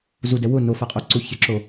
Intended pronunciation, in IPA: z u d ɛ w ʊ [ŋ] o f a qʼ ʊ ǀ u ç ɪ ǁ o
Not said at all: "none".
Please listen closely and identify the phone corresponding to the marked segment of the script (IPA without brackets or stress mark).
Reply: n